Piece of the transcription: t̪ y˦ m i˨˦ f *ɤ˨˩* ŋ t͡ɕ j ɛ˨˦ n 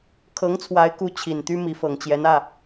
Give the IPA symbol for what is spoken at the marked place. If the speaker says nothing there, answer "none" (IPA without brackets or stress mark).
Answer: ɤ˨˩